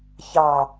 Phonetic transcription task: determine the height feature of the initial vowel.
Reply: low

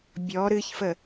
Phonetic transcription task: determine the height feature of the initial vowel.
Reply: mid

